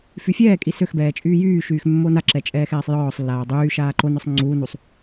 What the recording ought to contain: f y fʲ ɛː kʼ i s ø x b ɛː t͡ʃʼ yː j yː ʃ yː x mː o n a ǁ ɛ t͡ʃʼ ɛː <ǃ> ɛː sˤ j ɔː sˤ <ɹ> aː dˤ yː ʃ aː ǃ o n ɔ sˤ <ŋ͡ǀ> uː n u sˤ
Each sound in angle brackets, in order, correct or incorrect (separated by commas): incorrect, incorrect, correct